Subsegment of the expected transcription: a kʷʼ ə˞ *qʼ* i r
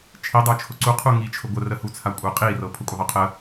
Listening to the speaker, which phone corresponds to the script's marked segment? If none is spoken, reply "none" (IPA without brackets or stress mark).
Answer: qʼ